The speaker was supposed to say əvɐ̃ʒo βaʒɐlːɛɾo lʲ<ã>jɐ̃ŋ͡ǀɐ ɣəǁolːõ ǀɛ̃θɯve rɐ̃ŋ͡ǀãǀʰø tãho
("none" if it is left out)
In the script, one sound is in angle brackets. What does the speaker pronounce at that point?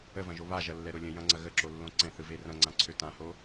ə̃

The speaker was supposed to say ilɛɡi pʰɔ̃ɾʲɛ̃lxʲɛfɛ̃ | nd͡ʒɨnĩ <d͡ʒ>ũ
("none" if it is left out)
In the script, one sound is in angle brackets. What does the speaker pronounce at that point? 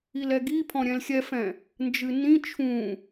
t͡ʃʰ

